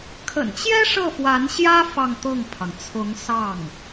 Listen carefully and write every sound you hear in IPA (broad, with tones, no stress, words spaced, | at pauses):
kʰə̰˨˩nt͡ɕjɛ˥ ʂɤ˥˩fwa˧˥nɕjä˥ fɑ˥˧ŋt̪ɤ˥˩ŋpʰɑ˩ŋ t͡sʰʊ˧˥ŋ sɑ˥˩ŋ